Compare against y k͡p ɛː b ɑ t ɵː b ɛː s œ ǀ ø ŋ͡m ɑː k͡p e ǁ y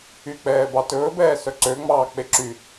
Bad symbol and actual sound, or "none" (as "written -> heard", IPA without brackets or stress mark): none